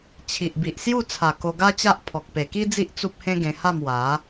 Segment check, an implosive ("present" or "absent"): absent